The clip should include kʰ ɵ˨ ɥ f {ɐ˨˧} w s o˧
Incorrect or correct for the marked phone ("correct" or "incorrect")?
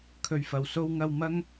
incorrect